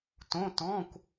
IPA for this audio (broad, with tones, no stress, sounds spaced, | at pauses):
t õ˧˥˧ t ɔ̃˧˥˧ kʷ